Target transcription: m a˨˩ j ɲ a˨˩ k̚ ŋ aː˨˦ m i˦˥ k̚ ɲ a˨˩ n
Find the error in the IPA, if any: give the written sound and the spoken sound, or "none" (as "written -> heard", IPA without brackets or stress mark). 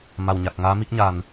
j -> w